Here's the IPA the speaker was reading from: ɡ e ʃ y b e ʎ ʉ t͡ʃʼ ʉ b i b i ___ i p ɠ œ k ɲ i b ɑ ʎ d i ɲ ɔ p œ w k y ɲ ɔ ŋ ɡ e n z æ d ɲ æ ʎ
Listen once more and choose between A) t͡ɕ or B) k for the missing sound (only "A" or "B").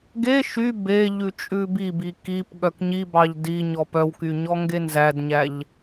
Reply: B